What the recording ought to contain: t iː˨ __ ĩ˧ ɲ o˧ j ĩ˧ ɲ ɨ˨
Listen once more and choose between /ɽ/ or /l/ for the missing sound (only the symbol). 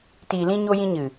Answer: l